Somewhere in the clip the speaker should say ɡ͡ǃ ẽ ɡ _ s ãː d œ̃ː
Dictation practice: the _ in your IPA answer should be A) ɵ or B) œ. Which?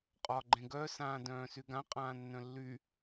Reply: B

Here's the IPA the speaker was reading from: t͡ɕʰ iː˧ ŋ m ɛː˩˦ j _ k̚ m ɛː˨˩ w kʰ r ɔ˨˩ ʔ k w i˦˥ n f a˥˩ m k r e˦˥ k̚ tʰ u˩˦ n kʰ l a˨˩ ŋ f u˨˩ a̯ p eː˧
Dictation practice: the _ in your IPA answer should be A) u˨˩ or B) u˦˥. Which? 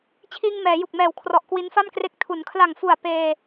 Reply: A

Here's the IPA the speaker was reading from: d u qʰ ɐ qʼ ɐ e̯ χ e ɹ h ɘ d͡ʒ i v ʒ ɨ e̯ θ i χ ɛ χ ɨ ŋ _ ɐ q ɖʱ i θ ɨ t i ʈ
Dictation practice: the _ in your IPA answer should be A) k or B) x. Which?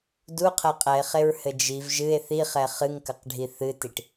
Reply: A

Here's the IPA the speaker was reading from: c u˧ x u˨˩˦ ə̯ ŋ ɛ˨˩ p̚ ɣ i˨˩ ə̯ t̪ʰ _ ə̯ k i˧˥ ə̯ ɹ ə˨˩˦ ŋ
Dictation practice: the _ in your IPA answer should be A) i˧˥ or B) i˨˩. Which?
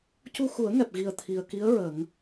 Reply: B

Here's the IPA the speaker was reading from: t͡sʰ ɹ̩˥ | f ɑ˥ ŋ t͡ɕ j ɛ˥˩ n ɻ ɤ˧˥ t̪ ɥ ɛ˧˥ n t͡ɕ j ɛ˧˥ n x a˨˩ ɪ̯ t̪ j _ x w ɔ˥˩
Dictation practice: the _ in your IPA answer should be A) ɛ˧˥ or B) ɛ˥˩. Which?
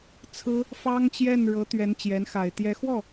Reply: A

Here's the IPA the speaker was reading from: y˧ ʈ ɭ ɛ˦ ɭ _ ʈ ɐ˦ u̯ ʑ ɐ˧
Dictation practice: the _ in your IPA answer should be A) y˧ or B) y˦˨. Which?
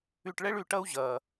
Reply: A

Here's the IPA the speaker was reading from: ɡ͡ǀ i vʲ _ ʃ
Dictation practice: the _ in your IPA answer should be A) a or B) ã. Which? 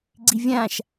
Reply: B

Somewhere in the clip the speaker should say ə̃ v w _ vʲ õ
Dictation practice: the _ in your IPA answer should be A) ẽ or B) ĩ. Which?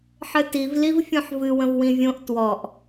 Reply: B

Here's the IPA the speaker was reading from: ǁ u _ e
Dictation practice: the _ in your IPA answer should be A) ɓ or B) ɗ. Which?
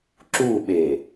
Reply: A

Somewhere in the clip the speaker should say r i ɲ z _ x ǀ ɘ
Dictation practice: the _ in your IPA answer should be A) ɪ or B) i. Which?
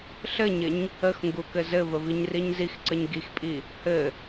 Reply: B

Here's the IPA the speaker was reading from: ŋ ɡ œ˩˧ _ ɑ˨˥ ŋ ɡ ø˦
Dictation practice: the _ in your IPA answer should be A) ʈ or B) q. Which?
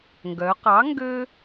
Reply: B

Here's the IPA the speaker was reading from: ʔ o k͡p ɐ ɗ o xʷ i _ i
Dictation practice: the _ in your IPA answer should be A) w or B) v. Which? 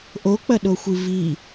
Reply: B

